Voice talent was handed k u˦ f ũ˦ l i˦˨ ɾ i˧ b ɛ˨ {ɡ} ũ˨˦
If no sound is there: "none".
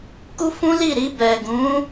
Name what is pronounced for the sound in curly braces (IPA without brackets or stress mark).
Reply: ɡ